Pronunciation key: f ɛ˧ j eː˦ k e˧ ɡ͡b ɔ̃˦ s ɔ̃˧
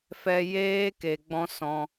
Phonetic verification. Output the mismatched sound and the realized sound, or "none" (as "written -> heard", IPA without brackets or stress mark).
none